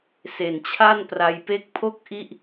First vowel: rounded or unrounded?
unrounded